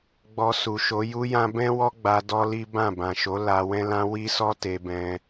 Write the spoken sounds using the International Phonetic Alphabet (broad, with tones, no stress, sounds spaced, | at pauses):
ɡ͡b ɔ˧ s u˨ ʃ o˨˦ j u˦ j ã˦ b ɛ̃˦ w ɔ˦ ɡ͡b a˧ d ɔ˦ l i˦ b ã˦˨ b ã˨ ʃ o˨˦ l a˧ w ɛ̃˦ l ã˦ w i˦ s ɔ˦ t e˧ b ɛ̃˧